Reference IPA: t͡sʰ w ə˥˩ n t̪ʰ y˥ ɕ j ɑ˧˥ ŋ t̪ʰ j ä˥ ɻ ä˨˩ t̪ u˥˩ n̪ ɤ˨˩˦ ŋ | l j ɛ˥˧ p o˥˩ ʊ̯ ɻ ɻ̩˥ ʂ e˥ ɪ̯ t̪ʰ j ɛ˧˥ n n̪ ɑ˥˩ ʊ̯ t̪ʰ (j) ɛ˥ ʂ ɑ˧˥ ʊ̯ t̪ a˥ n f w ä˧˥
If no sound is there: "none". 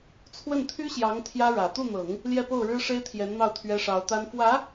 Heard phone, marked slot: ɥ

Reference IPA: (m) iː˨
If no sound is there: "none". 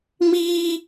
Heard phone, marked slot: m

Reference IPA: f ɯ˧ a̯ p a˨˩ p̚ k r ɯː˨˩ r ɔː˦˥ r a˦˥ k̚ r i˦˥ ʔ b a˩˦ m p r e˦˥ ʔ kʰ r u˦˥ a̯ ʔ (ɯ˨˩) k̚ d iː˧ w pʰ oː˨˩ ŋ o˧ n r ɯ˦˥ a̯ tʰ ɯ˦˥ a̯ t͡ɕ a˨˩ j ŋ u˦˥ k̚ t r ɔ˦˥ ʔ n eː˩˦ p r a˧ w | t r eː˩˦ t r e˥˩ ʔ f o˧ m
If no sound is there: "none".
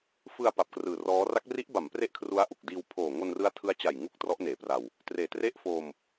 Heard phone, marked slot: u˨˩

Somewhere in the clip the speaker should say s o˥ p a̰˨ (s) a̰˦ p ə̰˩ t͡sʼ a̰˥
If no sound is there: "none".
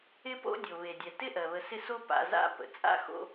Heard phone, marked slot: z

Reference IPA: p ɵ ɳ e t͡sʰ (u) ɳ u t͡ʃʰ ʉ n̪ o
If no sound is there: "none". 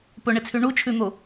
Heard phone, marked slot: y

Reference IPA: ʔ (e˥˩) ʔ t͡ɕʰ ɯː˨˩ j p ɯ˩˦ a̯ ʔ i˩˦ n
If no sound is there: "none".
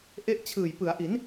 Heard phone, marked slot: e˦˥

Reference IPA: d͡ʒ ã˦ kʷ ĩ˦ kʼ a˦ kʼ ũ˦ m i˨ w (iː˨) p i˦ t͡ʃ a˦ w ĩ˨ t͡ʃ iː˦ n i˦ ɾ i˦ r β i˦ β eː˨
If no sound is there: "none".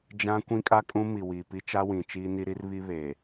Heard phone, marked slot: iː˨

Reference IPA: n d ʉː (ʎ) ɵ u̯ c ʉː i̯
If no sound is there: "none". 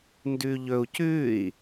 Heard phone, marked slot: ʎ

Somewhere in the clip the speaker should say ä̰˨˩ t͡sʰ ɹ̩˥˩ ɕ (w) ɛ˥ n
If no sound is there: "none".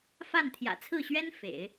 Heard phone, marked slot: ɥ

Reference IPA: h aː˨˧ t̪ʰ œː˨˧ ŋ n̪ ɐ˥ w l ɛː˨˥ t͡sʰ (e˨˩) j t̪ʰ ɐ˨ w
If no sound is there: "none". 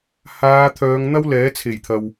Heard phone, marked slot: e˨˩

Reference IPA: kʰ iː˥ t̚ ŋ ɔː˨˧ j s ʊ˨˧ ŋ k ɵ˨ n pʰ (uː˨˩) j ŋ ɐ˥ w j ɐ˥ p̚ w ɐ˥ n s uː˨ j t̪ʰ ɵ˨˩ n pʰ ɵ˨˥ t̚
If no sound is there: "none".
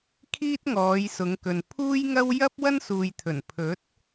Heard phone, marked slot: uː˥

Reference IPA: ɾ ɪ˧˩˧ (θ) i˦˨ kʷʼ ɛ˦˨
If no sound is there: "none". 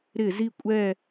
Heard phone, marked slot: z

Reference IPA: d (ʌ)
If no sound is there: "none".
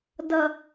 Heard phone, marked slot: ʌ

